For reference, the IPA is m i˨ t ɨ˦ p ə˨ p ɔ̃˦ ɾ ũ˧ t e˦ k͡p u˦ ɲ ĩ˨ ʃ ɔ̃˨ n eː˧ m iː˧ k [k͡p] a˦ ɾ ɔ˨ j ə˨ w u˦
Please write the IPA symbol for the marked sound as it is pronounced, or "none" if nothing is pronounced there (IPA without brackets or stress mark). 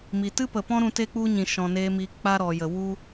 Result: k͡p